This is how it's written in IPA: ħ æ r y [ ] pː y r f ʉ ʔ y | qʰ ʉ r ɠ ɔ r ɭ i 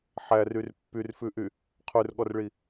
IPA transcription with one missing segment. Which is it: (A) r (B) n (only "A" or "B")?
A